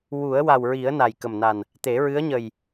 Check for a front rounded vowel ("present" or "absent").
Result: absent